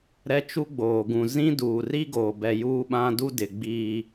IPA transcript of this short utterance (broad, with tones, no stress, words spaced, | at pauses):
ɾɛ˦t͡ʃu˦ɡ͡boː˨ ɡũ˨ zĩ˦ duː˨ri˦ɡoː˨bɛ˨ juː˦ɓã˦du˦ dɪ˨ ɡ͡biː˦